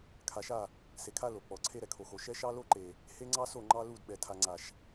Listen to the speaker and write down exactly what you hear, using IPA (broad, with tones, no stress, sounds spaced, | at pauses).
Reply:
kʰ a˨ ʃ a˦˨ | s e˨ kʰ a˦ l o˨ k͡p ɔ˨ ǀʰ e˦ ɾ ɛ˨ kʰ o˨ x o˨ ʃ ɛ˦ ʃ ɑ˦ l o˦ ǃ e˨ | h e˦ ŋ͡ǀ ɑ˦ s o˦˨ ŋ͡ǃ ɑ˦ l u˦˨ d ɓ ɛ˨ tʰ a˨ ŋ͡ǀ a˨ ʃ